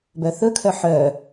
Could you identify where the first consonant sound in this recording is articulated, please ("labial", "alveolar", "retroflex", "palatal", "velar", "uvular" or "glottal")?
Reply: labial